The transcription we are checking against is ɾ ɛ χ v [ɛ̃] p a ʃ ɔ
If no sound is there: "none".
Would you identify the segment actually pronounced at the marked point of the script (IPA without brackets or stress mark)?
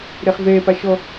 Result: ɛ